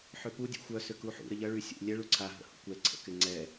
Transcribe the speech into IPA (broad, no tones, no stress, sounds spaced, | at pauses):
ħ ø p u dʲ ɛ̰ xʷ œ s ʏ k u ħ ṵ ɾ ə ʎ ɐ ɭ y sʲ ṵ lʲ ɛ ɭ u ǀʰ a ɦ ə̰ h ṵ kʷ ɛ ǀʰ ə̰ k ɪ ŋ͡ǀ ɛ